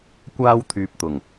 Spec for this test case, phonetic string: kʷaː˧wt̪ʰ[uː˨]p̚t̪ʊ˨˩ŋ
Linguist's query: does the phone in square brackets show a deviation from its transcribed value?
yes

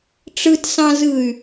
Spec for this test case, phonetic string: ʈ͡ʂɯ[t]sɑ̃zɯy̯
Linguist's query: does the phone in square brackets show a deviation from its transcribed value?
no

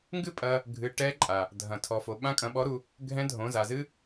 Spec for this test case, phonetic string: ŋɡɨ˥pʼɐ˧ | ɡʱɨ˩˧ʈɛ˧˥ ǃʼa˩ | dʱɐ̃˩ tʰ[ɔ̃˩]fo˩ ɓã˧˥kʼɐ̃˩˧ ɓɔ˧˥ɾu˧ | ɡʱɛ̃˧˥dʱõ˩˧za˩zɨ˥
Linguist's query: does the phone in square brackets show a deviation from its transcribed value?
yes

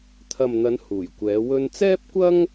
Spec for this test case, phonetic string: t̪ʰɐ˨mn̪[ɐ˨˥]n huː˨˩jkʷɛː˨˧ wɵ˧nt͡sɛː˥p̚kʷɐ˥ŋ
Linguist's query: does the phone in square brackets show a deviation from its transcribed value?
yes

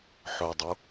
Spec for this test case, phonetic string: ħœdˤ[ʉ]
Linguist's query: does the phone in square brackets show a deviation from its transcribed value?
yes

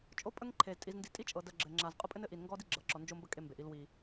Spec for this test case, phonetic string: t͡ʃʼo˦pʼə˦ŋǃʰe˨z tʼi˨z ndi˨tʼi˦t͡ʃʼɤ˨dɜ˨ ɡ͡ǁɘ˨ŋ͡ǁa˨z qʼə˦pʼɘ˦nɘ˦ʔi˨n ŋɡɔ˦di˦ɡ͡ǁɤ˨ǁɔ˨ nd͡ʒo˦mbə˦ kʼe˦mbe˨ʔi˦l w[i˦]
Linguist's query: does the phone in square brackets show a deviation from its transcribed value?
yes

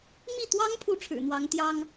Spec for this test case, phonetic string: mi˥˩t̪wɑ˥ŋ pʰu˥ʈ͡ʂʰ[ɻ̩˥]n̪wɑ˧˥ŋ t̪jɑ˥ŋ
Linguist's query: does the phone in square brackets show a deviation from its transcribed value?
yes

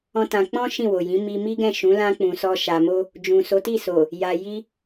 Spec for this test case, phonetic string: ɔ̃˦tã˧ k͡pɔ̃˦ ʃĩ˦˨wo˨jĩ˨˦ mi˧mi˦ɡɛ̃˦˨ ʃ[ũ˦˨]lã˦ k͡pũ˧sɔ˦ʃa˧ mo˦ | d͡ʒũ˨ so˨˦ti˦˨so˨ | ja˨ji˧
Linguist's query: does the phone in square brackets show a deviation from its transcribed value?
yes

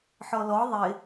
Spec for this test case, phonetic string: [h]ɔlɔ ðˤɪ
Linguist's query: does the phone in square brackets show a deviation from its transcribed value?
yes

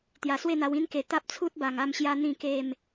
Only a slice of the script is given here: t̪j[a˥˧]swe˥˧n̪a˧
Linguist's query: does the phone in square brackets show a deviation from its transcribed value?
yes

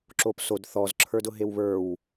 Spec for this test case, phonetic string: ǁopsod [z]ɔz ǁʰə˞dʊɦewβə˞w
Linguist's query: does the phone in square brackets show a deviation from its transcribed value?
yes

